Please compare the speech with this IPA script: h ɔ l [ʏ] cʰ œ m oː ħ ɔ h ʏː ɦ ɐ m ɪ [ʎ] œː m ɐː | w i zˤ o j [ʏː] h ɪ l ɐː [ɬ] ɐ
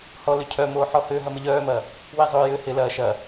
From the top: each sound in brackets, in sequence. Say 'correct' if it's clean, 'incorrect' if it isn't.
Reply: correct, correct, correct, incorrect: ʃ

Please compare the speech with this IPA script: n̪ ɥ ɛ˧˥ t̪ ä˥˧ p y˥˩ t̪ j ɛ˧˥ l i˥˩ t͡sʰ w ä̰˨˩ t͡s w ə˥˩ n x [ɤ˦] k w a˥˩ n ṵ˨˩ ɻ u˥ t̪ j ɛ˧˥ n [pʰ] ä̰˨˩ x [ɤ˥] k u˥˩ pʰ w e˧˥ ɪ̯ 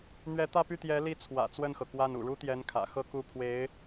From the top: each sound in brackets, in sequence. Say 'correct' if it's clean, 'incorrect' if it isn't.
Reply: incorrect: ɤ˩, incorrect: kʰ, correct

